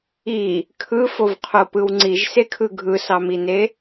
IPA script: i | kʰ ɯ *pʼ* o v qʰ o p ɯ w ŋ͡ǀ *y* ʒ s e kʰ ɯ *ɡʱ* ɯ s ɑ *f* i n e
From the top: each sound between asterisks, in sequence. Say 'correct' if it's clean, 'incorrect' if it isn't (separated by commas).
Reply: incorrect, incorrect, correct, incorrect